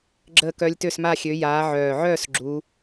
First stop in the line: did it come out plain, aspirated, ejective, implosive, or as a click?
click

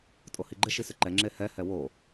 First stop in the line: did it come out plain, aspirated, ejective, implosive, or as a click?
ejective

